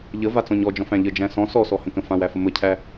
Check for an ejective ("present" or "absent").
absent